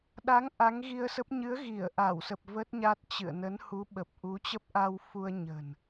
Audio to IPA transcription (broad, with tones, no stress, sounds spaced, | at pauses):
ɗ a˨˦ ŋ ʔ a˨˦ ŋ ɣ i˧ ə̯ s ə˦˥ p̚ ɲ ɨ˨˦ ə̯ ɣ i˧˩ ə̯ ʔ a˧˩ w s ə˨˩ p̚ v ə˦˥ t̚ ɲ a˦˥ t̚ t͡ɕ ɨ̰˧˨ ə̯ n ə˨˦ n h u˨˦ ɓ ə˨˩ p̚ ʔ u˨˦ t͡ɕ ə˦˥ p̚ ʔ a˧ w f u˧ ə̯ ɲ ə̤˨˩ n